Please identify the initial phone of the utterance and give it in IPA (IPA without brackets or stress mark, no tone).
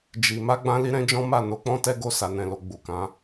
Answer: d͡ʒ